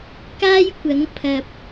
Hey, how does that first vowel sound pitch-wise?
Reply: high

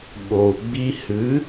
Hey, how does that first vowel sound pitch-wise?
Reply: low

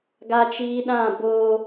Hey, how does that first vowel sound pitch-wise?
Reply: high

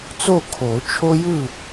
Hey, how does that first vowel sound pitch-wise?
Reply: falling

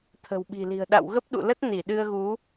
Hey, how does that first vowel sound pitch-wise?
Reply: low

